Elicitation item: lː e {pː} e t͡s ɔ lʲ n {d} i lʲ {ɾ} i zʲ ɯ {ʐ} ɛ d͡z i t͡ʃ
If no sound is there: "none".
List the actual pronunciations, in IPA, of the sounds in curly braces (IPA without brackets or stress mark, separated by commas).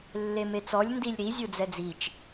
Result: m, d, ɾ, d͡z